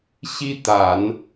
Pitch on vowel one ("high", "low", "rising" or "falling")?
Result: high